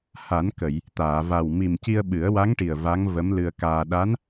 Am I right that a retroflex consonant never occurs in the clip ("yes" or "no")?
no